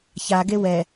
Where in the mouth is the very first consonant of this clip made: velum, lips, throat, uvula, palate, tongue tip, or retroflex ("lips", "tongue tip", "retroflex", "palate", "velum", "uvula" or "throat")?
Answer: palate